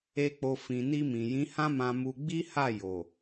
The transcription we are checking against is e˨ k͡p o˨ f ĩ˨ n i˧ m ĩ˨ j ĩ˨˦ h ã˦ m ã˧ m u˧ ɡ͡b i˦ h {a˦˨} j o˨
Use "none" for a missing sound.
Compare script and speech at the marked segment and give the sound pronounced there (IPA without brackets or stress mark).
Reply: a˦˨